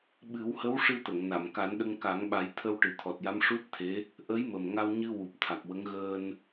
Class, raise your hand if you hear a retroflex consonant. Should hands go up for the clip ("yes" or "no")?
yes